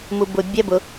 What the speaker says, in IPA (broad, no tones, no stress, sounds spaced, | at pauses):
m u b ʊ bʲ ɛ b ʊ